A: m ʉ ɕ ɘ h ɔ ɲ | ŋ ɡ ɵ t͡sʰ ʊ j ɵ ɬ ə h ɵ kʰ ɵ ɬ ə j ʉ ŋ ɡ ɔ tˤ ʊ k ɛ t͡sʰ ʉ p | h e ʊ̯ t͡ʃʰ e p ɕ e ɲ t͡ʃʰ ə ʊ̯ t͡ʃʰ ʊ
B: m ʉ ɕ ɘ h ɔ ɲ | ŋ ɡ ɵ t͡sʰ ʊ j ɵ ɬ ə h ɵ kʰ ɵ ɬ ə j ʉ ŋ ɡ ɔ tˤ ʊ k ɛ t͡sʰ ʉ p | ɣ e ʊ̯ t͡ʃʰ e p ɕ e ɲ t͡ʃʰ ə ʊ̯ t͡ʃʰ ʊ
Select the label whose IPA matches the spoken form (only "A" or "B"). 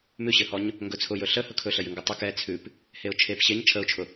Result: A